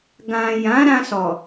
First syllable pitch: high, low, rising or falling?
low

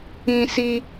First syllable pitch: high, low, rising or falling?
high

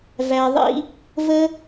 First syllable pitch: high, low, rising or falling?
low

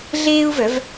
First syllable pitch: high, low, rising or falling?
high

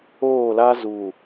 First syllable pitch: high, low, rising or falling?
falling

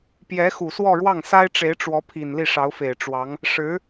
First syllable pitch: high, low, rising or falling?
rising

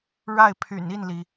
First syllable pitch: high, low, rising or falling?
falling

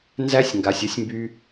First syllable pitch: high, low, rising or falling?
high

